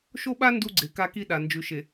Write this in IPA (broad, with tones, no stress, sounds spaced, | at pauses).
ʃ o˦ ɓ a˦ n d u˦ ɡ͡ǀ e˨ k a˦ k i˦ ɗ a˨ n d͡ʒ ʉ˨ ʃ e˨